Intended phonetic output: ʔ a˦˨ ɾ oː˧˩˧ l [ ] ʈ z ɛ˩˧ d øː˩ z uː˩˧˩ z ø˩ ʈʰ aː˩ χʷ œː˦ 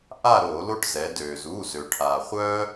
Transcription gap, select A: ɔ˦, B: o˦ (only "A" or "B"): B